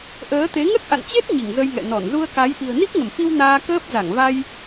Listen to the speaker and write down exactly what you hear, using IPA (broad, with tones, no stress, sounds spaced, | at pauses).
ʔ əː˨˦ t̪ e˨˦ ŋ ə˦˥ t̚ ʔ a̰˧˨ n t͡ɕ e˦˥ t̚ ɲ i˧˩ ŋ z ə˧ j ŋ ɛ̰˧˨ n ɔ˧˩ n z u˧ ə̯ k a˨˦ j ʔ i̤˨˩ ə̯ n i˦˥ k̚ ŋ ə˧˩ m f i˧ w n aː˧ k əː˦˥ p̚ z a˧˩ ŋ v a˧ j